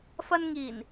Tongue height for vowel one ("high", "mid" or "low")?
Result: low